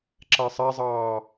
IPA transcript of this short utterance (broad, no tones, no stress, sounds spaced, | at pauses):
ǁ a sˤ a zˤ ɑː